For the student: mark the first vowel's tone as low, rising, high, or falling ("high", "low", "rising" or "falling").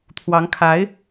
rising